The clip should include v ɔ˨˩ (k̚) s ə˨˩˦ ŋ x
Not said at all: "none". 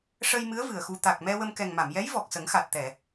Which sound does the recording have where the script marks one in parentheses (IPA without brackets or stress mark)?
k̚